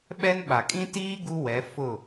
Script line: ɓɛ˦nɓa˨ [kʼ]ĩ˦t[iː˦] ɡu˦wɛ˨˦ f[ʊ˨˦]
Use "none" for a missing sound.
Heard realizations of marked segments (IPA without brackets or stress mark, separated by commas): kʼ, iː˦, ʊ˦˨